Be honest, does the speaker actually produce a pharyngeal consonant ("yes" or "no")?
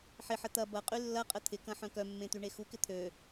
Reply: yes